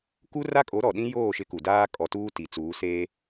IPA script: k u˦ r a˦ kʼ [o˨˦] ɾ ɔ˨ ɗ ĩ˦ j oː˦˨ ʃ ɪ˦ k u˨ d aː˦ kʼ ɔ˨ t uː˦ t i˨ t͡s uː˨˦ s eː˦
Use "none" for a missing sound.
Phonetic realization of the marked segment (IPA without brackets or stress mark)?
o˨˦